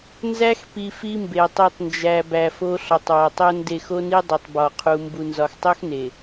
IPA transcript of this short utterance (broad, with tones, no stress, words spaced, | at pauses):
nzæ˦xpi˨ fi˦mbe˨ tˤi˨tˤnd͡ʒæ˨ bæ˨fo˦ ɬɒ˨˦tˤwɒ˨tˤo˦nde˦˨x o˦ni˦dˤo˨tˤ bɒ˨qʰu˨ mbu˨nzɒ˨xtˤo˦xne˨